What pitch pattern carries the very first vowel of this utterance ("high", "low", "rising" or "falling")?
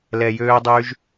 low